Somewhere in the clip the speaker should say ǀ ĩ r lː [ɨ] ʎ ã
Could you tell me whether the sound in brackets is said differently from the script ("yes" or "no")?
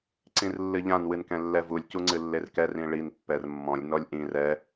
no